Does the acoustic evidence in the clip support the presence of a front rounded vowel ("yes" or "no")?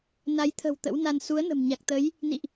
no